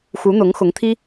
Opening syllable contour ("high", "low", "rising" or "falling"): rising